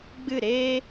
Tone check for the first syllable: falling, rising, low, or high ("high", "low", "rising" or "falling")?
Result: falling